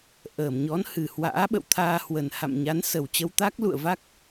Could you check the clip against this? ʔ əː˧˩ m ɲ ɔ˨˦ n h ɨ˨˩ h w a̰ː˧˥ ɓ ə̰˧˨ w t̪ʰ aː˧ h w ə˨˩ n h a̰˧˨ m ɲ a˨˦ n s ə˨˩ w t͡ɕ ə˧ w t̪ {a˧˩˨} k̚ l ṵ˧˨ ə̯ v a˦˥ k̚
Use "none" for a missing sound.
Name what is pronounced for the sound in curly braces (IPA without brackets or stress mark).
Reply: a˦˥